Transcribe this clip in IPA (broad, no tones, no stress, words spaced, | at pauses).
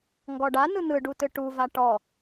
ŋɡɔɖa n̪ɯn̪ɯɖutɯ ʈuva ʈɔ